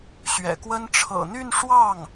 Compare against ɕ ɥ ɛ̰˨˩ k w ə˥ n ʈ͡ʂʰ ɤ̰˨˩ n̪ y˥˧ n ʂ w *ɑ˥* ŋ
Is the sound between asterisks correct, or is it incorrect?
incorrect